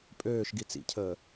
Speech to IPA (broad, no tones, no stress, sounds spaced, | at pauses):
pʼ øː ʃ ɡ i t͡s ḭ cʰ əː